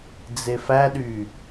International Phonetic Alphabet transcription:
d͡z e f æ ɗ y

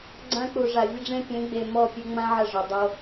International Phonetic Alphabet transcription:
ɡ͡ǀ ã˦ k͡p u˨ ʐ a˨ vʲ ə˦ ɖ͡ʐ ẽ˦ pʲ ẽ˨˦ ɡ͡b e˨ m ɔ˦˨ pʲ e˦ ŋ͡m ã˦ ʕ ə˦˨ ʐ ɔ˨ dˤ o˦

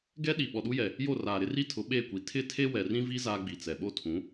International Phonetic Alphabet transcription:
ɡ ɛ˦ ɗ i˨ ɓ ɔ˨ ɗ u˦ j ɛ˨ | j o˦˨ r aː˨ ɾ ɪ˦ r i˦ tʰ ʊ˨˦ ɓ eː˦˨ kʷ i˨ tʰ ɪ˦ tʰ e˦ w ɛ˨ r ĩ˦ v i˦ z aː˦ ɡ͡b i˨ t͡s ɛ˨ ɓ o˦ tʰ ũ˨˦

